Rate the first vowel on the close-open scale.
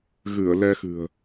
close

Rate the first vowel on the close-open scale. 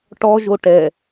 mid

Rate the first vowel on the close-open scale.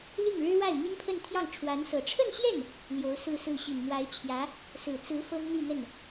close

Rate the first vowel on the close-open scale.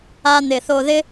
open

